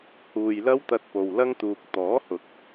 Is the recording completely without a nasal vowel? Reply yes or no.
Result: yes